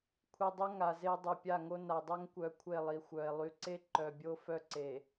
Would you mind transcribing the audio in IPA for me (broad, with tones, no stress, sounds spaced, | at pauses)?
kʷʰ i˨ dˤ o˦ ŋ a˨ z e˦ dˤ o˨ pʲ a˦˨ ŋ o˦ n a˨ dˤ œ˦ ŋ kʷ œ˨ kʷʰ e˦˨ lˠ i˨ xʷ œ˨ e̯ lˠ y˨ ǀ e˦ ǃ œ˨ bʲ o˦ f œ˦ ǀ e˨